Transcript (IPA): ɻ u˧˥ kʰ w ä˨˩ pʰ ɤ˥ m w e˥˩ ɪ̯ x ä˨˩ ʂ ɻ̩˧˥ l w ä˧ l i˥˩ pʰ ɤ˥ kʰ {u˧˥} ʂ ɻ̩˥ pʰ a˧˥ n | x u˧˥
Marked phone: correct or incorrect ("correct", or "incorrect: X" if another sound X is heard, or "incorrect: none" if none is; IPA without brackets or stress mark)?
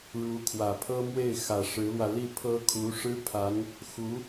correct